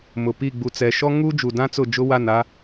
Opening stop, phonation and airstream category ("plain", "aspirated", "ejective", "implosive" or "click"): plain